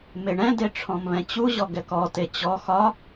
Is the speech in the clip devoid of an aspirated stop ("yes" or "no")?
no